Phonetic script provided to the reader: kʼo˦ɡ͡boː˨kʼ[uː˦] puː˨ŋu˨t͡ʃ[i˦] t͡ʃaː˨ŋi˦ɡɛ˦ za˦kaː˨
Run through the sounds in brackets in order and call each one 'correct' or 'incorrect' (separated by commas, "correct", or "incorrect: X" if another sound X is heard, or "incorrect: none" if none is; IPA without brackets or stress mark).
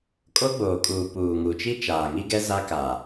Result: incorrect: uː˨, correct